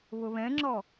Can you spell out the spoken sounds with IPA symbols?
βʊβɛ̃ŋ͡ǁɔ

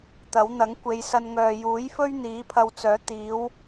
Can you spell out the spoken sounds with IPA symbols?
t̪ɐ˨˥wn̪ɐ˨˥ŋ kʷe˨˧jsɐ˧nŋœː˨ juː˨˥jfɵ˥ɥ n̪iː˨˥pʰɐ˧wt͡sœː˨˥ t̪iː˨˥w

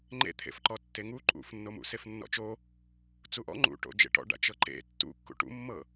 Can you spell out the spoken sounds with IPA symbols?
ŋ͡ǃḛt̪ʰḛfǃɔ tːeŋu ǃʼṵfnːomṵ sefnːɔ̰t͡ʃo | t͡suʔɔ̰ ŋ͡ǃṵ ʈo̰d͡ʒḛʈɔ̰ɖa̰ t͡ʃɤǃḛ tːṵkːṵ ʈṵmːɤ

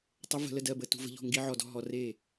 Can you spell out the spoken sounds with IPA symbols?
tˤə˧˥və̤˧lə˥˩ dɜ˥˩bə˧ tṳ˧və̤˧ʎɔ̤˥˩ ŋɡi˧˥ʕɔ˧dɔ̤˥˩ ɦɔ˧re˥˩

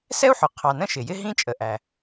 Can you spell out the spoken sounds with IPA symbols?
sɛ˥u̯ħʊ˩ qʰɑ˩ nə̃˥ʃɪ˩jɪ˥ ɦĩ˥ t͡ʃʼə˩ʔæ˩

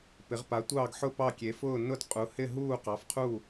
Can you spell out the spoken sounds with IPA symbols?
pɪ˧˥ʁpa˧˥tʷɑː˥˧ɡħʊ˥˧ pɑ˥˧kʲe˧˥fʊː˥˧ nʊ˥˧dqʼu˧˥hɪ˥˧ ɦuː˥˧qɑ˧˥fqʰu˥˧

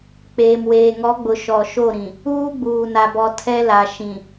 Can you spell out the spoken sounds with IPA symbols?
k͡peː˨mweː˨ŋɔ˨˦ɡ͡bʊ˨ ʃɔ˨ʃo˦˨ ɾĩ˨ | uː˦ɡ͡buː˨na˨bɔ˨ tʰɛ˦la˨ ʃĩ˨

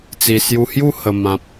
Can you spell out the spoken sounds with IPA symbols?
t͡si˨˩sju˧hju˥˧ hə˨˩mã˨p̚

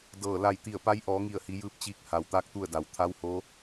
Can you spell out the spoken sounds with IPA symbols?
dɤː˧˩ la˧˩jt̪i˧˩ə̯pa˧˥j ʔɔː˩˧ŋi˧˩ə̯hi˩˧ jɯː˧˥p̚t͡ɕiː˧k̚ ha˩wt̪aː˥˨k̚t̪u˥˨ə̯da˩w t̪ʰa˧˥who˧˥

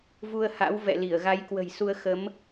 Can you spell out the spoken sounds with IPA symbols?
vu˧ə̯ha̰˧˥w vɛ̰˧˨li˧˩ə̯ɣa˨˦j kwə̤˨˩jsu˧ə̯xə˨˦m

